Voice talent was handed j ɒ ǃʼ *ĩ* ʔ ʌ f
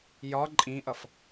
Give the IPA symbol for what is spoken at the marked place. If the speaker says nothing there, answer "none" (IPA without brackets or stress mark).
ĩ